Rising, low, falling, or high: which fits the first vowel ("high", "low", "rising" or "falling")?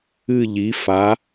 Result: falling